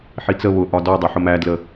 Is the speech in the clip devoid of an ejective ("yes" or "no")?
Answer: yes